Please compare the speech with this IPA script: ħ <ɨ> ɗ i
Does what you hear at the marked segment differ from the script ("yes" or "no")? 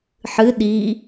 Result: no